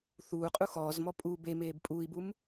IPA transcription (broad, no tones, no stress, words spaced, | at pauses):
θuːqʼu xɔːzmɔ pʼu bemeːb pʼuːi̯bum